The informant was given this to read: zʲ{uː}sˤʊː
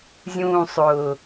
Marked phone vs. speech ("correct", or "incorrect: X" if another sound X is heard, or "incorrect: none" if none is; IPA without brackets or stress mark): incorrect: ũː